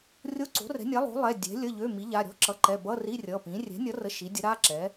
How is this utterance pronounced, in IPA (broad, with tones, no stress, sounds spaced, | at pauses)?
rʲ o˧˥˧ ǀ o̤˩˥ r ɛ̤˩˥ nʲ a˩˥ lˠ o̤˩˥ lˠ ɛ˩˧˩ dʲ ɛ̤˩˥ lʲ ə˩˧˩ ʎ ø˩˧˩ m i˩˥ ʎ a˩˧˩ ɾʲ ɔ̤˧˥˧ ǁ ʌ˩˥ ǃ ɛ˩˧˩ b ʌ˧˥˧ r i˧˥˧ rʲ ʌ˩˧˩ p ĩ˩˥ rʲ ɛ̤˩˥ nʲ ʌ˩˥ r ə˩˧˩ ʃ i˩˥ dʲ ə˩˥ ɾ a˧˥˧ ǁ ɛ˩˥